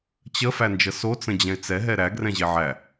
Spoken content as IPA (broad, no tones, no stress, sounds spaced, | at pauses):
t͡ɕ ə f æ n d͡ʒ ə s o t͡s ə̃ d͡ʑ ɛ̃ ɪ̯ t͡s ɛ ɦ ɛ ɾ æ ɡ r ɛ̃ ʑ e ʕ æ